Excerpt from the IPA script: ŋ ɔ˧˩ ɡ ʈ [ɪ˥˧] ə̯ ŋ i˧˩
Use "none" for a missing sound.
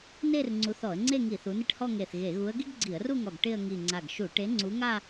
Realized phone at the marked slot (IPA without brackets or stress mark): ɪ˥˧